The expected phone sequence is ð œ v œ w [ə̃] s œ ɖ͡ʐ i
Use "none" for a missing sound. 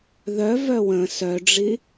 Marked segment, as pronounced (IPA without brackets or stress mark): ə̃